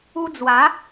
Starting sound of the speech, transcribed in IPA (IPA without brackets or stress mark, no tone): u